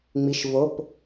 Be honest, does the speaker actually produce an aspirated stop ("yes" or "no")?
no